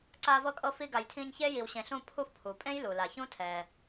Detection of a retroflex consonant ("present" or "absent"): absent